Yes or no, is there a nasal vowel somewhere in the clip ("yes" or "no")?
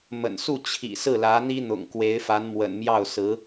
no